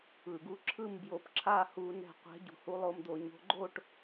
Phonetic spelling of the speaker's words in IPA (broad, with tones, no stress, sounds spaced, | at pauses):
ɯ˩ ɡ u˨˦ ǁʰ ɯ˥˨ m b j o˨˦ p ǁʰ a˥˨ h u˧˩˧ n ɛ̤˧˩ qʷ ɛ̤˨˦ ɟ ṳ˩ h u˦ lˠ o˥˨ m d̪ o˧˩˧ ɲ o̤˨˦ ɡ͡ǃ o˥˨ ʈ